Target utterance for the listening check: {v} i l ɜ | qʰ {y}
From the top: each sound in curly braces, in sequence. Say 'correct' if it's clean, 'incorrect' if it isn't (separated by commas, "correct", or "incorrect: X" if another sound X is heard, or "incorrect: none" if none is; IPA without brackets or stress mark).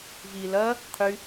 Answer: correct, correct